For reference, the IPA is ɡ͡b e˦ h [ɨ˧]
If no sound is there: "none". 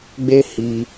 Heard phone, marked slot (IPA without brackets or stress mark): i˧